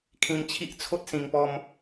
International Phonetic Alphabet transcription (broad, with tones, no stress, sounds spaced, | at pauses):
kʰ ĩ˧ m t͡ɕʰ i˦ ʔ t͡sʰ o˦ t̚ s ĩ˨˩ ŋ p ɔ˧ m